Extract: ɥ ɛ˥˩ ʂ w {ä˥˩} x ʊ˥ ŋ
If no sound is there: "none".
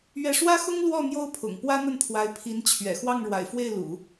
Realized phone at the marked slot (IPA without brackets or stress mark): ä˥